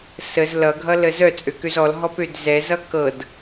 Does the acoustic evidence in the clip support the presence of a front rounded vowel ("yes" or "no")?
yes